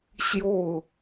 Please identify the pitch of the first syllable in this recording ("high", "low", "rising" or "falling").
falling